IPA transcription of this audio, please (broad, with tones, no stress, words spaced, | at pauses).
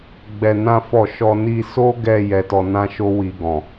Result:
ɡ͡bɛ˧nã˦fɔ˦˨ ʃɔ˧ ni˧so˦ɡɛ˧ jɛ˧tɔ˧nã˦ʃo˦ wi˧ɡɔ̃˨